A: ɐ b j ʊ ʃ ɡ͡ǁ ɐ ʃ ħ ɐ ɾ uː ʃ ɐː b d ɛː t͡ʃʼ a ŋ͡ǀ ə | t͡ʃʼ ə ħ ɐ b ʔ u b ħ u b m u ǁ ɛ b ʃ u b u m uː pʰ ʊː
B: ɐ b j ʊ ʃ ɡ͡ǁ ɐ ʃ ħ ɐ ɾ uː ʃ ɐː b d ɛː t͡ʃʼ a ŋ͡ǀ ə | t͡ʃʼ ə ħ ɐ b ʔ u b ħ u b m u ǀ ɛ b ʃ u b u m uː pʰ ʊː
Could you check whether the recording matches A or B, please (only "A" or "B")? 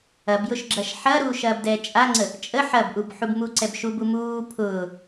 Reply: B